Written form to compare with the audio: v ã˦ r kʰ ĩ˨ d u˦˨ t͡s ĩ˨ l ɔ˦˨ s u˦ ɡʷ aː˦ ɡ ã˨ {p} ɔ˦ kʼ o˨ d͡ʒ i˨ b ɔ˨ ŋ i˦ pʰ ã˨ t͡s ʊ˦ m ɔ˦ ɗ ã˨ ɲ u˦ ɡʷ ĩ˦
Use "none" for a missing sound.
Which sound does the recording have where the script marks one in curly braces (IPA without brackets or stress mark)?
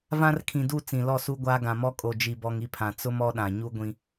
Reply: m